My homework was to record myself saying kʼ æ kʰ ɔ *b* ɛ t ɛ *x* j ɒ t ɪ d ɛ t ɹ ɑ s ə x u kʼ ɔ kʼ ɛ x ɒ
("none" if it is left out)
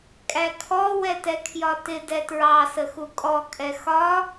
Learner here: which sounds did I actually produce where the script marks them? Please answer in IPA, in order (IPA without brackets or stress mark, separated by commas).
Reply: w, kʰ